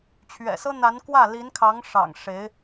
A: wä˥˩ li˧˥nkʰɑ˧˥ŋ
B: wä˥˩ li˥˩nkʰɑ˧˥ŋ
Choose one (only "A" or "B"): A